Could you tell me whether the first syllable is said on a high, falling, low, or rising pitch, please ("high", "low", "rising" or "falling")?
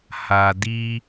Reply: low